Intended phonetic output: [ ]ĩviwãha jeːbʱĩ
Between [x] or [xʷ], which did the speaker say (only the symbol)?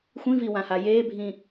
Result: xʷ